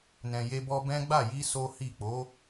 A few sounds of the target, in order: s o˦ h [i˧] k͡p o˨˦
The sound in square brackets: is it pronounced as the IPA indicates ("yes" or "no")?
no